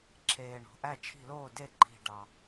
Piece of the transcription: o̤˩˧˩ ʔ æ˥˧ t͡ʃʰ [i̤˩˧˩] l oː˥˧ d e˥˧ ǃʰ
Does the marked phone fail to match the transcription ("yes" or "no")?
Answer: yes